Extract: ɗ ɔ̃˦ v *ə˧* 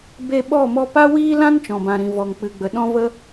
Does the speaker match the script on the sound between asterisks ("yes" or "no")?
no